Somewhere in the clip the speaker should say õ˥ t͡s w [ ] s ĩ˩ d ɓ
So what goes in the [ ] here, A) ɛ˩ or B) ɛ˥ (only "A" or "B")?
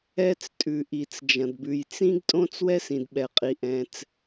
B